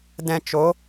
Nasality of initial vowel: nasal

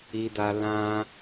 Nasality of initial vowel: oral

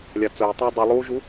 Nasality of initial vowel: oral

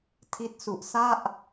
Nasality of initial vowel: oral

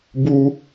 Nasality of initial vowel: oral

